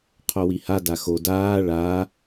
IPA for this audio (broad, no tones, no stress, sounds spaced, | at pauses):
qʰ o w i h a d a x o d aː ɭ a